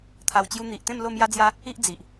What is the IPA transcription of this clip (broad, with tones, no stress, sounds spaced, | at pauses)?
t̪ʰ a˧ w t͡ɕ j u˧ n̪ i˨ ʔ t̪ ẽ˥˧ m l o˥˧ m j a˦ d͡z j a˦ | i˦ ʔ d͡z i˨ ʔ